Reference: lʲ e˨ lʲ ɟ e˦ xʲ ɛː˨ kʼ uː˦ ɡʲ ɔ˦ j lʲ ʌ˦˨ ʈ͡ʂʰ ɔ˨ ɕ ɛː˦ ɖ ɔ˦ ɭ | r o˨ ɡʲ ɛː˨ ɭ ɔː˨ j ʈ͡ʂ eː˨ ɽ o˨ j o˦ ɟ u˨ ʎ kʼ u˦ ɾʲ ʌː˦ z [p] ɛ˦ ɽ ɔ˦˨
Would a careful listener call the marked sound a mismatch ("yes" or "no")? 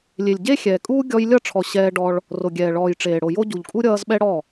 yes